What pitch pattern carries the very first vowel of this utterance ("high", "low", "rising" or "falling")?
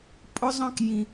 high